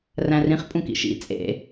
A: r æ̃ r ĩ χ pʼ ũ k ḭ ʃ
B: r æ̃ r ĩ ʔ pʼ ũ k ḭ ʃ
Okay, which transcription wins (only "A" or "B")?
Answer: A